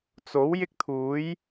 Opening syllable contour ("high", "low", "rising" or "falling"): rising